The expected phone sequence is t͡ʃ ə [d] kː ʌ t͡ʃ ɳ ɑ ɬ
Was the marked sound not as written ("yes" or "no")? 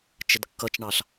no